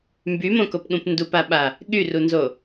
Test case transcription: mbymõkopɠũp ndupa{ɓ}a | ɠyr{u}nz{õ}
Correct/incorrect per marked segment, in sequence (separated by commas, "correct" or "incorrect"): correct, correct, incorrect